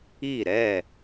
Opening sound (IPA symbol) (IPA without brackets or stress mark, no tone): i